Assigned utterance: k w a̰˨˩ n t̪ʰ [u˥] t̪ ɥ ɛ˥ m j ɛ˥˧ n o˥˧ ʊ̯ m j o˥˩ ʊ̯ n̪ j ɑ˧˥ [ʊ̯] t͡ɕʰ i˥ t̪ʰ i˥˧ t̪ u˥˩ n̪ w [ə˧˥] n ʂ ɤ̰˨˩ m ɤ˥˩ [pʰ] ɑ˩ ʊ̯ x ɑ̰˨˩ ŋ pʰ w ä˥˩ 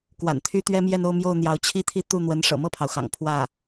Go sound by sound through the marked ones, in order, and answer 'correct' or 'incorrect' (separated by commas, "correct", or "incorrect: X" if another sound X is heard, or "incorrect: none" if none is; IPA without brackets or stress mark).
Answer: incorrect: y˥, correct, correct, correct